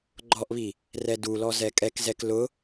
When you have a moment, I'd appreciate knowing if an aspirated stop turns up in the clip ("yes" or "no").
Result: no